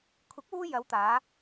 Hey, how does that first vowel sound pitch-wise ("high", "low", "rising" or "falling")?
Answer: rising